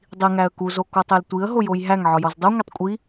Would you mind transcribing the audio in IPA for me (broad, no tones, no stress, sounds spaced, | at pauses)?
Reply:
dˤ i ŋ æ ə̯ k u z o k o tˤ e l tʷ i ə̯ ɦ o j o j ɦ æ ŋ ʕ ɒ j ɒ z dˤ u ŋʷ e tˤ kʷʼ i